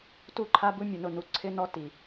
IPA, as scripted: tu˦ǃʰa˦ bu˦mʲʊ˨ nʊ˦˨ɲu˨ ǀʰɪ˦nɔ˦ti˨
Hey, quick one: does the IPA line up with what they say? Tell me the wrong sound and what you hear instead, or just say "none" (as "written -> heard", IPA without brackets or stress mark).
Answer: ɲ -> n